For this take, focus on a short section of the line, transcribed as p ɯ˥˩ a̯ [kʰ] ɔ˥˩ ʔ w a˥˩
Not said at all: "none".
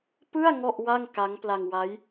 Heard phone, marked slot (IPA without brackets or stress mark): ŋ